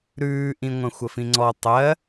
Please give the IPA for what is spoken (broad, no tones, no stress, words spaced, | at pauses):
ɾʉːʔĩ ŋʷɐ̃xʷəfĩŋ͡ǀɔ tˤɜ